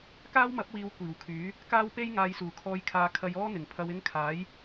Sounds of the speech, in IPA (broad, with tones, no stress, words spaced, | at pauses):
kaː˥wmɐ˨˥p̚wiː˨˧w kʷiː˨˩wkʰyː˨˥ | kaː˥wpe˥j ŋaː˨jsuː˨˩kʰɔː˨jkʰaː˨ kʰɐ˧jɔː˥n̪ɪ˨˩ŋ pʰɐ˧wɪ˥ŋ kʰaː˨˥j